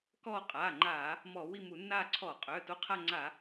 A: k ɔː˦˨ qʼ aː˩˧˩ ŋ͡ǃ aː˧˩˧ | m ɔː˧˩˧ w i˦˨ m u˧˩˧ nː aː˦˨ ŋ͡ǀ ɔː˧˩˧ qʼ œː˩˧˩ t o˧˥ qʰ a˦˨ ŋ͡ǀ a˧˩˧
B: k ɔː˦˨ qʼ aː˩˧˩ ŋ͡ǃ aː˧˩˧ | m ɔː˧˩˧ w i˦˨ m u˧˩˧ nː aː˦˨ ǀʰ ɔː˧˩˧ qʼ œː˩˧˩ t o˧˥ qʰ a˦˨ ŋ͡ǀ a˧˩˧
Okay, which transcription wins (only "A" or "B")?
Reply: B